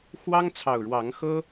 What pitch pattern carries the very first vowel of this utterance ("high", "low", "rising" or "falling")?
high